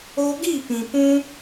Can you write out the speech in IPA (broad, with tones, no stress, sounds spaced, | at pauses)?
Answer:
o˧ ɡ i˦˨ p ĩ˨ p ũ˧